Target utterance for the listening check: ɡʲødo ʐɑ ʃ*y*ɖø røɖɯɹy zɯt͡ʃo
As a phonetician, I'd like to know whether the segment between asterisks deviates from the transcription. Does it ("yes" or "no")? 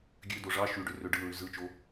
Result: no